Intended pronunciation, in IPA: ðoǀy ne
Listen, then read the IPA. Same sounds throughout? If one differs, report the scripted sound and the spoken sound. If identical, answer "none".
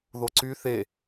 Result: n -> θ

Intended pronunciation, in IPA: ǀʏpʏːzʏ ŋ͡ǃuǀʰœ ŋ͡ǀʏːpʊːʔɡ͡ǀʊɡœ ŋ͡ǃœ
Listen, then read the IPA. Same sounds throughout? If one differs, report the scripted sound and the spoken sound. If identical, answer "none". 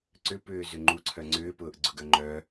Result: none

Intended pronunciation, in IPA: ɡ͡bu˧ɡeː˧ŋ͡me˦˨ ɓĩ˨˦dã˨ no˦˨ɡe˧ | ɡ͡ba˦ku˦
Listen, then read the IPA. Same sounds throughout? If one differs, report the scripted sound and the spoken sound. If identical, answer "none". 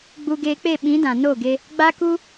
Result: ŋ͡m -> k͡p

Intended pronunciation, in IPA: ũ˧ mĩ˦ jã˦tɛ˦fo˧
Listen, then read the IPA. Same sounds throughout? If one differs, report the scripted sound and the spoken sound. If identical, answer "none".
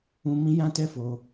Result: none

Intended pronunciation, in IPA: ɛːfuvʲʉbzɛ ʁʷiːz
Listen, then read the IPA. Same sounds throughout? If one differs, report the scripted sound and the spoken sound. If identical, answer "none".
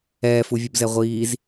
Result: ʉ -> u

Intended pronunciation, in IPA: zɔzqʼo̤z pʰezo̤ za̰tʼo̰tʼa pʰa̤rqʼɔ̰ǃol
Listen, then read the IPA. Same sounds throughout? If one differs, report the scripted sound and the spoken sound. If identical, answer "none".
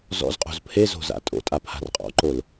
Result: ɔ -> ɔ̰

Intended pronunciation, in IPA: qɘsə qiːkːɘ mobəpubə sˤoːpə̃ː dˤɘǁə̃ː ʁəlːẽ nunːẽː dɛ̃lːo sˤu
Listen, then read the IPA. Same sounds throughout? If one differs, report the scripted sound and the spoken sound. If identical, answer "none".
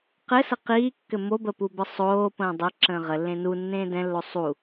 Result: none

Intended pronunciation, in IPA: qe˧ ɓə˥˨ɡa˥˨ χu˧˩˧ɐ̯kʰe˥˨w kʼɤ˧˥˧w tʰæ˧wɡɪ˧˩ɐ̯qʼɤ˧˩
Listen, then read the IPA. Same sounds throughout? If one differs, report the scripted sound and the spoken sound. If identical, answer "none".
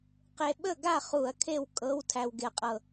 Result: none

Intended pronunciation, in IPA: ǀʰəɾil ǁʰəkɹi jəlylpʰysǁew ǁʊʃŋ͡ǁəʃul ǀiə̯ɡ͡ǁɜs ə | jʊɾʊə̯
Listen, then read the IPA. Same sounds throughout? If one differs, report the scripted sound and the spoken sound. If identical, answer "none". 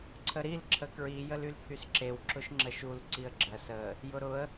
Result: none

